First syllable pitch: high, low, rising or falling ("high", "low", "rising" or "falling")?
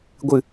falling